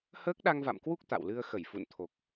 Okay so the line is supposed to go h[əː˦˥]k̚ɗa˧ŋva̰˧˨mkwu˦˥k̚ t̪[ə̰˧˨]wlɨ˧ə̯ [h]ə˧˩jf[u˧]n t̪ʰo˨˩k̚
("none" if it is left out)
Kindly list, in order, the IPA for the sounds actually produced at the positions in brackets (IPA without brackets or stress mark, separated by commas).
əː˦˥, a̰˧˨, x, ṵ˧˨